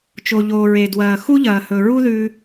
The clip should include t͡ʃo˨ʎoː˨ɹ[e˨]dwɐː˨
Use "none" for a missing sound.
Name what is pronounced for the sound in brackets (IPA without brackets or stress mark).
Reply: e˨